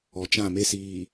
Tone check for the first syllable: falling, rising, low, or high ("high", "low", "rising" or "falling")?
low